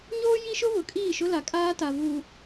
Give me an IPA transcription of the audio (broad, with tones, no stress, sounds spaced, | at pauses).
ɲ oː˦ j i˦ ʃ ʊ˦ β ʊ˨ kʼ iː˦˨ ʃ ʊ˦ l a˨ kʼ aː˦ t a˨ v uː˨